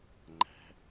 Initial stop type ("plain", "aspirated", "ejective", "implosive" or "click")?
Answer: click